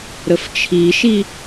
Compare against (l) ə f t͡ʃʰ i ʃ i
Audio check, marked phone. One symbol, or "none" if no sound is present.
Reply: ɾ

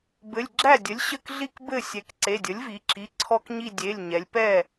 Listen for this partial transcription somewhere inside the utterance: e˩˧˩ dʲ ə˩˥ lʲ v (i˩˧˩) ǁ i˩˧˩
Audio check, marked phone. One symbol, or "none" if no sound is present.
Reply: i˩˧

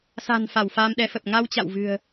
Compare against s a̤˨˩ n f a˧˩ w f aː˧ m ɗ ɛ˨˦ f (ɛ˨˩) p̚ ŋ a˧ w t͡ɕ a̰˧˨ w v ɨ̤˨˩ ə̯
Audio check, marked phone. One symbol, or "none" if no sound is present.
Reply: ə˨˩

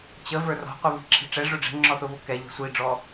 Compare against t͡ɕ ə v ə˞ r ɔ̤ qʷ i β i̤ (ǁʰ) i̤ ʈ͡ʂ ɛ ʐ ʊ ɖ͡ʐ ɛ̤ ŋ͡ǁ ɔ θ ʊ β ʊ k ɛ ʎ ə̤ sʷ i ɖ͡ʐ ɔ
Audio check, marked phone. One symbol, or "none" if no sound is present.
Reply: ǁʰ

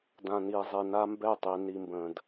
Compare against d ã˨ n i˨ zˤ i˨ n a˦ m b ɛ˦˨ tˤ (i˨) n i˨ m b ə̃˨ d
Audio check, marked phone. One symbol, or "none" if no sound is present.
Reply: i˨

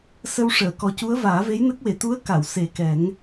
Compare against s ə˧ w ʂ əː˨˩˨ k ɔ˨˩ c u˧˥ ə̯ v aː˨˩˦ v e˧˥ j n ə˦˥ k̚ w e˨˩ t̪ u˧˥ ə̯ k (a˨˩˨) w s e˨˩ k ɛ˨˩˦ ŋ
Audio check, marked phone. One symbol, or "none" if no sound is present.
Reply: a˨˩˨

